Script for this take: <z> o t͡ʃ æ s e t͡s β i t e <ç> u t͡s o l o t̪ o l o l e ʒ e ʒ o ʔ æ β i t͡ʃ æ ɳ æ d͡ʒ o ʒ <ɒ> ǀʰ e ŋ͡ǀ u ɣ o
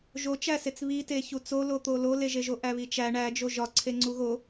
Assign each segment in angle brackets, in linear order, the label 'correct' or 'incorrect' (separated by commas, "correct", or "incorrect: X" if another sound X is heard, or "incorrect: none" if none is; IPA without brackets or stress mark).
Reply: incorrect: ʒ, correct, correct